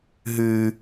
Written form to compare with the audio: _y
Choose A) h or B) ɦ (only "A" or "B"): B